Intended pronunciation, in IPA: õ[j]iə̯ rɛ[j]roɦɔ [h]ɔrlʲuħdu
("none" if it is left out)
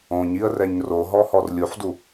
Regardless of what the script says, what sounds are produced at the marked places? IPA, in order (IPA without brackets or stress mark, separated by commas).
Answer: ɲ, ɲ, h